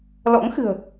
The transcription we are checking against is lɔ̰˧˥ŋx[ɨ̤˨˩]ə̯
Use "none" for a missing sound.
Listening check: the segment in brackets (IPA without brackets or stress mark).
ɨ̤˨˩